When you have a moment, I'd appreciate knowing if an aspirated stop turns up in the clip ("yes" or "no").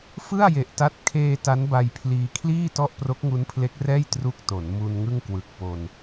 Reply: yes